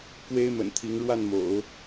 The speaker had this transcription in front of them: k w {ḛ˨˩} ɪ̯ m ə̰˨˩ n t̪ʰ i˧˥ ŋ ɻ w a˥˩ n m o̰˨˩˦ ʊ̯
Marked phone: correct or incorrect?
incorrect